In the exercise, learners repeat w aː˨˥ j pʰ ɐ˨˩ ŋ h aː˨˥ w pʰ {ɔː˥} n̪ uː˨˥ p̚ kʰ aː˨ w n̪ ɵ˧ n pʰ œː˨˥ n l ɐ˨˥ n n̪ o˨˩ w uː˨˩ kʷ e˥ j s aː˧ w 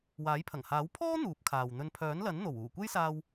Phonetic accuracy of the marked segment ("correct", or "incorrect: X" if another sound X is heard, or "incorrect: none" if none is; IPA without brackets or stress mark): correct